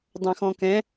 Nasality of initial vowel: nasal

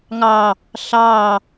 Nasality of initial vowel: oral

